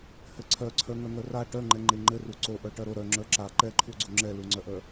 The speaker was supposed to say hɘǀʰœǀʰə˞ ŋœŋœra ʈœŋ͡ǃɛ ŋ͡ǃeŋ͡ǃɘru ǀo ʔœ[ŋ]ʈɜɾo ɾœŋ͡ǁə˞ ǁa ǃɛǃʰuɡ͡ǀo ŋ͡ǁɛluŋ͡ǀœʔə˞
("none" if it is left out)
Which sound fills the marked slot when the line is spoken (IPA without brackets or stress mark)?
none